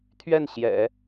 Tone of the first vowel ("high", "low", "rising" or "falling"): falling